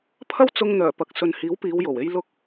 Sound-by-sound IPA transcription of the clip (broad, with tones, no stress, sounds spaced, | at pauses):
pʰ ɐ˥ w t͡s ʊ˧ ŋ n̪ œː˨˩ p ɐ˨ k̚ s ɵ˨ n h iː˨˥ w p iː˨˧ w j o˨˩ w e˥ j l ʊ˥ k̚